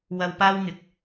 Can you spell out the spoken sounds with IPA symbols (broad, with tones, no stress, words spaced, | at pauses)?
wɐ˧wpaː˥wŋɪ˨˥k̚